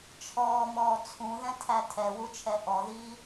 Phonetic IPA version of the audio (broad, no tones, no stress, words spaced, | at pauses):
t͡ʃʰɔːmɔː t͡sʰũðɛ̃tʰæ tʰɛwut͡ʃʰɛ ʔɔðiː